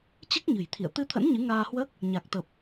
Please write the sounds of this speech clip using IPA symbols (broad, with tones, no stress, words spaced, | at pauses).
t͡ɕɨ˦˥k̚ɲɨ̤˨˩jt̪ʰḭ˧˨ə̯ t̪ɨ˧t̪ʰə̰˧˥n ɲɨ˨˦ŋaː˧hwəː˦˥k̚ | ɲa˨˩k̚t̪ə˨˩p̚